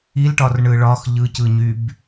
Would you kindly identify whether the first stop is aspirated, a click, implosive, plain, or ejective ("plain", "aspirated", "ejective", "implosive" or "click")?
plain